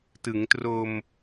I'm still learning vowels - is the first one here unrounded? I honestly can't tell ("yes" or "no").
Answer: yes